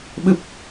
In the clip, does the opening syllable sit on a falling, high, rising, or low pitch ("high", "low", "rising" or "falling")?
low